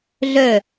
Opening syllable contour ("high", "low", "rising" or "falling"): falling